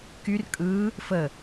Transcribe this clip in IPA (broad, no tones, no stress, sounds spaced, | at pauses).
k y r kʼ ɯ | f ə